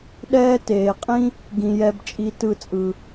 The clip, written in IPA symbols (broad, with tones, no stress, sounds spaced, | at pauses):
ɗ ɛː˦ t eː˧ qʼ ĩ˦ | ɡ ĩ˧ j ɛ˧ b t͡ʃʼ i˦ t ɯ˦˨ t͡sʼ ɯ˧